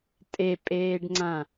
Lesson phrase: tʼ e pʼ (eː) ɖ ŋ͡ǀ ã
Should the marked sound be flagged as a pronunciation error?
no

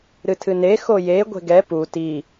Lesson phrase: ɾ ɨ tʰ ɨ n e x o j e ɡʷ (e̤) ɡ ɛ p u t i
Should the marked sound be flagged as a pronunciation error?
no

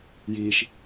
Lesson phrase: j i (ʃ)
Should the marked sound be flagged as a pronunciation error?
no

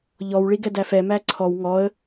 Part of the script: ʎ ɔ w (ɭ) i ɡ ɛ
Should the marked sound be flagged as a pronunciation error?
no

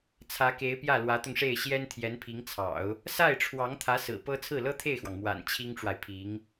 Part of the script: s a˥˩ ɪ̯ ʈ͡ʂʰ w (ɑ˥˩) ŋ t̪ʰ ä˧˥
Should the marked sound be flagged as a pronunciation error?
yes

